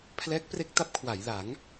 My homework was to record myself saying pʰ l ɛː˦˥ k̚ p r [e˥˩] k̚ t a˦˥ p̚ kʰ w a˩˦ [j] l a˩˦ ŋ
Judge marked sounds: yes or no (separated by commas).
no, yes